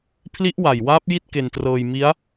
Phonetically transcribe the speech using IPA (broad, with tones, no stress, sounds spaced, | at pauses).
pʰ l i˦˥ ʔ w a˨˩ j w aː˦˥ p̚ j i˥˩ t̚ k e˧ n t r ɤː˧ j m i˦˥ a̯